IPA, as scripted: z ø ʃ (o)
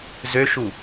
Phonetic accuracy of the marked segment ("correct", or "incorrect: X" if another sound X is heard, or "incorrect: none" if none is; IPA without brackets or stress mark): incorrect: u